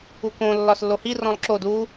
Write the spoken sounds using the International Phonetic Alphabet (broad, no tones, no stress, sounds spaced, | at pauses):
u k õ lː ɒ s lː o h i r ɔ̃ lˠ ǁ o d u